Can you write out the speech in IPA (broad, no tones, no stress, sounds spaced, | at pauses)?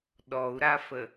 ɗ ɔ u̯ ɾ a f ə